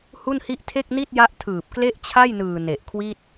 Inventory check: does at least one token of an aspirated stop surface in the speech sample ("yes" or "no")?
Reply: yes